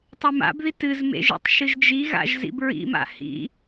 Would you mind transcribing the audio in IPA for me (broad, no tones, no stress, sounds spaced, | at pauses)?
tˤ e m a̰ b ð i t ɨ z m ḛ ʒ ḛ tˤ ʃ ɨ ʒ d͡ʒ i ɣ a̰ ʒ z ḭ b ɹ ḭ m a̰ h ḭ